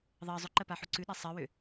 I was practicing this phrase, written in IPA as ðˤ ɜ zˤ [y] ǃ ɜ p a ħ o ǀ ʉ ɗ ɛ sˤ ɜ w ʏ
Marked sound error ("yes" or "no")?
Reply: yes